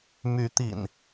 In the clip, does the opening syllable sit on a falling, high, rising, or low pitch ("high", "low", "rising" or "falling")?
rising